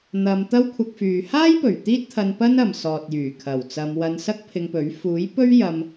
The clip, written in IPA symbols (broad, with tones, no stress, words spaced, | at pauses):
n̪ɐ˨˧m t̪ɐ˥wkʷʰɐ˧k̚fyː˨ haː˥jpɵ˨˩ɥ t̪iː˥t̚t̪ʰɐ˧n pɐ˥nɐ˨msɔː˨t̚jyː˨˩ kʰɐ˨˩wt͡sɐ˨˧mwɐ˧n sɐ˥k̚pʰɪ˧ŋpɵ˨˥ɥ fuː˨˥j pɵ˥ɥjɐ˧m